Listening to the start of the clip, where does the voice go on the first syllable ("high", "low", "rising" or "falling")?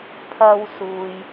high